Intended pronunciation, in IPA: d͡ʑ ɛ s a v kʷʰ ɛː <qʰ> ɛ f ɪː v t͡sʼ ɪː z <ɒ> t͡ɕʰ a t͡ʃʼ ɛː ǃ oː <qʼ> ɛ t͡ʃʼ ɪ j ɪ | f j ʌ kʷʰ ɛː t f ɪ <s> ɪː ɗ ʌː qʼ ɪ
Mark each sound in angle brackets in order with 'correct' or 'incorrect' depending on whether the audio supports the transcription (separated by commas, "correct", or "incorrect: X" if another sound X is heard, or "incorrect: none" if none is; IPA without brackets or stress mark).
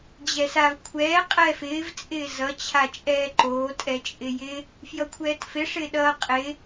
incorrect: qʼ, incorrect: ʌ, incorrect: tʼ, incorrect: ʂ